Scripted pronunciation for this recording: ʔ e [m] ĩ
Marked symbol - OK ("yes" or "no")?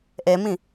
yes